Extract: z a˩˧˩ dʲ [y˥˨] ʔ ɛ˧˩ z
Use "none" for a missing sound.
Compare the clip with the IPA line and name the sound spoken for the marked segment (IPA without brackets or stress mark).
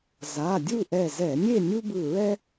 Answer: u˥˨